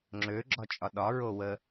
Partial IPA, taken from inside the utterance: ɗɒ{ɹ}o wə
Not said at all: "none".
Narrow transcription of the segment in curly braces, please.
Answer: ɹ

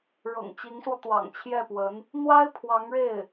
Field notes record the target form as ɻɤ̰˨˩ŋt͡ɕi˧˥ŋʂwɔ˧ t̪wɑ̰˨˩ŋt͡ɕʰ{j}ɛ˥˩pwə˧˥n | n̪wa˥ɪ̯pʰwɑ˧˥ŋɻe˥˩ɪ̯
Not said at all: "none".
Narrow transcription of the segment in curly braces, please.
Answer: j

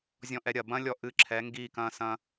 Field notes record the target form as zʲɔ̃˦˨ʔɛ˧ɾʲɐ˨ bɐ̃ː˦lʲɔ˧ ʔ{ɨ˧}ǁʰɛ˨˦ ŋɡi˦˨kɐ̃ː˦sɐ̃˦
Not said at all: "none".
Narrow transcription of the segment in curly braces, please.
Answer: ɨ˧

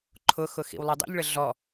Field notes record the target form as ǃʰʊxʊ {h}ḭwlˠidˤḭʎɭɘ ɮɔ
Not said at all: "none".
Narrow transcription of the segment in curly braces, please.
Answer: x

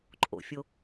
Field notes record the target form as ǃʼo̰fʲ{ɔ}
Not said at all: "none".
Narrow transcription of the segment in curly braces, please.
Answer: o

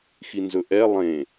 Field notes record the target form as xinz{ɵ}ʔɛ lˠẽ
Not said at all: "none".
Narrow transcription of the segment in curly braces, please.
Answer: ɵ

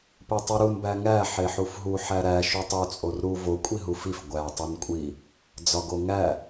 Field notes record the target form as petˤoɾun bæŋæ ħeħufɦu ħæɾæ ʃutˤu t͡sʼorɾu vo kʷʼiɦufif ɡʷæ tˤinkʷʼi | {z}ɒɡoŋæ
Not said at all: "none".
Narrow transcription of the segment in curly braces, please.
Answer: d͡z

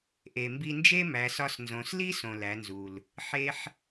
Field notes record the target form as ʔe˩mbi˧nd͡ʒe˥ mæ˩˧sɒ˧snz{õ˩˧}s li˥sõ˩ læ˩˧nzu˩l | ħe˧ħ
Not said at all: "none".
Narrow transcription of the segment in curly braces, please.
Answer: õ˩˧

